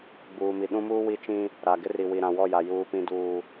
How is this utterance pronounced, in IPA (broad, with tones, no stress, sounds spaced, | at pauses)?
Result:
ɡ͡b uː˨ m i˨ ɗ ũ˦ m uː˦ w i˦ t͡ʃ ĩ˦ | ɾ a˨ ɡ ɪ˦ r i˨ w i˨ ɾ ã˨ w ɔ˦˨ j a˨ j uː˨ p ĩ˨ d uː˨